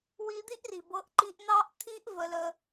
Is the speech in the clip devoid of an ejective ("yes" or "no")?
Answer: yes